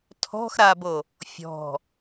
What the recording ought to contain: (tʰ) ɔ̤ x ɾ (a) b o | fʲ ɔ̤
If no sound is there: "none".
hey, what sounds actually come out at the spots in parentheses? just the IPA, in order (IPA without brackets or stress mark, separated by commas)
tʰ, a